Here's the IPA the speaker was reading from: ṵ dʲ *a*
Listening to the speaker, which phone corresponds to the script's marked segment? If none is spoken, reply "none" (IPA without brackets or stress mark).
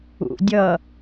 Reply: ʌ